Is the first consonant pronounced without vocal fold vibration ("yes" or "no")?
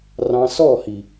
no